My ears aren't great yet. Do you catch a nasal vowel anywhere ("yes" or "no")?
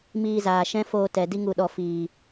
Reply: yes